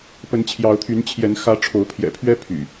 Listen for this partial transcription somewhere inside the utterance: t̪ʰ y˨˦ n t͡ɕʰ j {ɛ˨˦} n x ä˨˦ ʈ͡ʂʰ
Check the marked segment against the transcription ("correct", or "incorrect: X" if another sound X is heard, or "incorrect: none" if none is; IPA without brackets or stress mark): correct